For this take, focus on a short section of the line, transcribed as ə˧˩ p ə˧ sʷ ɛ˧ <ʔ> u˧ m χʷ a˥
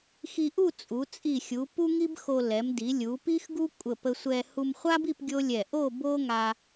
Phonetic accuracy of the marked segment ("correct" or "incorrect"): incorrect